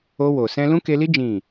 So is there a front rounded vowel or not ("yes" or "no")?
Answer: no